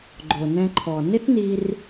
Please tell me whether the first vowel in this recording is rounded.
yes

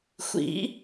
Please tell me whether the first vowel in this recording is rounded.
no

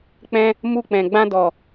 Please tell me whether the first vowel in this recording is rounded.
no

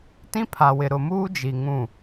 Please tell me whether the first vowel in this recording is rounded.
no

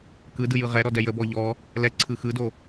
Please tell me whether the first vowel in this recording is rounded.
no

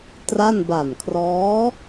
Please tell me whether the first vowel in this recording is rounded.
no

